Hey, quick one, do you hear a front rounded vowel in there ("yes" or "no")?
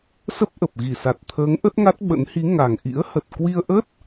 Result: no